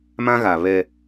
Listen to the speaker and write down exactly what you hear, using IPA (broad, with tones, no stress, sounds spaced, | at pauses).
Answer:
m ã˦ ɣ a˨ β ɛ˦